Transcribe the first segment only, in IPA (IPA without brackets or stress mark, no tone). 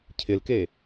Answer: cʰ